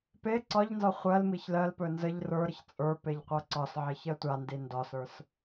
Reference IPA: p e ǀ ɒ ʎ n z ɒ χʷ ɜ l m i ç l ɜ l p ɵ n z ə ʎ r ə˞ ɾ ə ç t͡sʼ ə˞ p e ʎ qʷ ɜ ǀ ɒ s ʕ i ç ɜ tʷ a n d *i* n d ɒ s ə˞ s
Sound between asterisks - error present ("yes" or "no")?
no